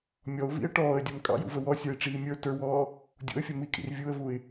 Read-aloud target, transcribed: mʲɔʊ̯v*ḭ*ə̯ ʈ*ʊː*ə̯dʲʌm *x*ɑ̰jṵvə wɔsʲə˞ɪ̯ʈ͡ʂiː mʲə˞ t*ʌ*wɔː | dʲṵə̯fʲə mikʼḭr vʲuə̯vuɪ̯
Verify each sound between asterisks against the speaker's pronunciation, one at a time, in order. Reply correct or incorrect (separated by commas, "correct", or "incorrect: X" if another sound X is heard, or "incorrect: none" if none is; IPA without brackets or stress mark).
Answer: correct, incorrect: ɔː, incorrect: kʼ, incorrect: ə˞